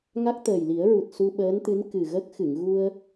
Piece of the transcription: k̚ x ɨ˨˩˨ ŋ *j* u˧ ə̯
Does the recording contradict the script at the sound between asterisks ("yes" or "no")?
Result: yes